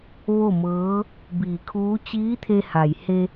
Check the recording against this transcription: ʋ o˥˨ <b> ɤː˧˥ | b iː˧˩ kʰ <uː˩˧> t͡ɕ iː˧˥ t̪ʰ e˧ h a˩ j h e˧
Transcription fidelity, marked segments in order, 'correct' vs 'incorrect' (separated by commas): incorrect, incorrect